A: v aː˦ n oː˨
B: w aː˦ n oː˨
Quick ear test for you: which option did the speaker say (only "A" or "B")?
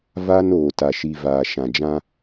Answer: A